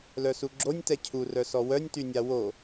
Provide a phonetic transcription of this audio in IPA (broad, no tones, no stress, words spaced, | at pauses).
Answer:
lœsuɡ͡ǁonʲ tɛcʰu rœsɔwœnʲ tynʲawo